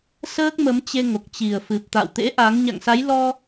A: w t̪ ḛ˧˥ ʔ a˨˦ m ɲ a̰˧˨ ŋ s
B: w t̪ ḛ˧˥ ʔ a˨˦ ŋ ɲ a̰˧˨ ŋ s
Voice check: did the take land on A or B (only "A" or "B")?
B